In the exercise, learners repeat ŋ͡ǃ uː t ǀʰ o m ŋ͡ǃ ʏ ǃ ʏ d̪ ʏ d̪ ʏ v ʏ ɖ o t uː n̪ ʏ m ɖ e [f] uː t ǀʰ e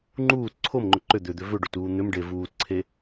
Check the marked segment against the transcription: incorrect: v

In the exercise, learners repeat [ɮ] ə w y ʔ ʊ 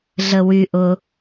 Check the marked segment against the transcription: correct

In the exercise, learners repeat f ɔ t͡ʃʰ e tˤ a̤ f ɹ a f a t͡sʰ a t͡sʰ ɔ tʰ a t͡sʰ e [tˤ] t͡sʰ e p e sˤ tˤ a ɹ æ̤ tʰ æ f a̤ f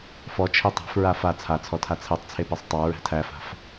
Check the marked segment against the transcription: correct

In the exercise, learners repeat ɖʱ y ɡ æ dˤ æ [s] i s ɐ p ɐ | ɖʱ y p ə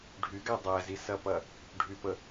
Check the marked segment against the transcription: incorrect: z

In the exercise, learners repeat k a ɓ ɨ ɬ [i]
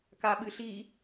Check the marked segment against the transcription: correct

